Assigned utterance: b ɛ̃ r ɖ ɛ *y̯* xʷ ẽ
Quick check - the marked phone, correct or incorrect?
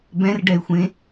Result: correct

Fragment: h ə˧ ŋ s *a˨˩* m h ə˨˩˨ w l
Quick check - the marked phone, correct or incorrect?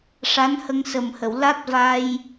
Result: incorrect: ə˨˩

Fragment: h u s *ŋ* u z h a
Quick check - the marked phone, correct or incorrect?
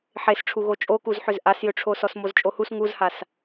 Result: correct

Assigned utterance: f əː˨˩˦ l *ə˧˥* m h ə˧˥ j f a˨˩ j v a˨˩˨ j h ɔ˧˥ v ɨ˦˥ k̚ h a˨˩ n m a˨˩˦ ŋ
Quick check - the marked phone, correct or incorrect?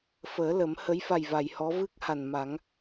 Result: incorrect: ə˨˩˦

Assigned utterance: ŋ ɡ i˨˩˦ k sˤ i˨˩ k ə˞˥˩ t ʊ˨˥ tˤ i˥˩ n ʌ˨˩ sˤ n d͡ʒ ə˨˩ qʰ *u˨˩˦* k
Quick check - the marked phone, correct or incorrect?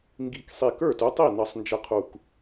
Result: incorrect: u˨˩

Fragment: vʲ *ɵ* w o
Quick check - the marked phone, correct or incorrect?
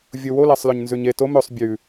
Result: incorrect: o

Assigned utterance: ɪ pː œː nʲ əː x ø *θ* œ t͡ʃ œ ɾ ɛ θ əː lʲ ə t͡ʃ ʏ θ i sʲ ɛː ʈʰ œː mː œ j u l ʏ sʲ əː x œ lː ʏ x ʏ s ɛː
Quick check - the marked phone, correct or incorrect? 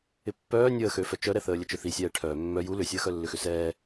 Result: incorrect: f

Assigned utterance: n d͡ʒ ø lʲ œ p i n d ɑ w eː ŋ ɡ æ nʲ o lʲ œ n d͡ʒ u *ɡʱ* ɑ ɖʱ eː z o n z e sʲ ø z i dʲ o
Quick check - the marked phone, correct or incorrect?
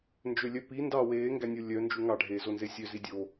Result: incorrect: ŋ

